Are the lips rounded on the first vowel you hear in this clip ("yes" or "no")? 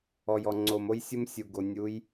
yes